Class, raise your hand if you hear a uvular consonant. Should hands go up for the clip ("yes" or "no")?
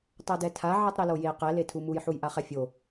yes